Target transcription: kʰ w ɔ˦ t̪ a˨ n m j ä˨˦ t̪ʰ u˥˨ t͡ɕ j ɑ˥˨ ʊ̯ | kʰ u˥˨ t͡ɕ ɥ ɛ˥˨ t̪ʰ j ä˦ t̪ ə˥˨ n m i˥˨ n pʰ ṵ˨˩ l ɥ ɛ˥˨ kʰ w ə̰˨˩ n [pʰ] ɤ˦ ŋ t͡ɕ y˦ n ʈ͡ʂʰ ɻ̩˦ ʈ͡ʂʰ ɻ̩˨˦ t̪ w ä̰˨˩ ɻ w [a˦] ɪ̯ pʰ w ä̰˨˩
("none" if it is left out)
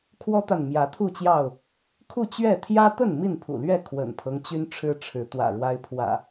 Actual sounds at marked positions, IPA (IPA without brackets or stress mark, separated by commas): pʰ, a˦